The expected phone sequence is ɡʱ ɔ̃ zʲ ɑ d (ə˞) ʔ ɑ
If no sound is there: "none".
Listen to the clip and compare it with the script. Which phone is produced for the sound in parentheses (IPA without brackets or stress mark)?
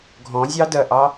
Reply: ɜ